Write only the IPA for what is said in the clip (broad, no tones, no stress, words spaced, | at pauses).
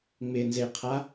ŋ͡mɪnzeqʰa